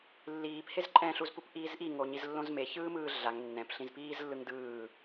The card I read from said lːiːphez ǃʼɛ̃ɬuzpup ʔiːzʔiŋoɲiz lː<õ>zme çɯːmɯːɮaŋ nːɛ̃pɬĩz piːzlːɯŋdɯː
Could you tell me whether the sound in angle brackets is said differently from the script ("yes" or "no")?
no